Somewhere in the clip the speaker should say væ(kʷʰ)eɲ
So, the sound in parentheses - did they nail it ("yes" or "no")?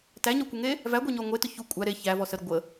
no